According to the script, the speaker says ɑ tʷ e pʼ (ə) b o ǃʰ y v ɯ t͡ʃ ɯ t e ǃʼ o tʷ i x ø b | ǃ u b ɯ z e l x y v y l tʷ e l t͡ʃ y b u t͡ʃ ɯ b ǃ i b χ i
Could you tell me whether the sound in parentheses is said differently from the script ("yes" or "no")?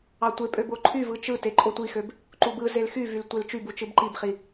yes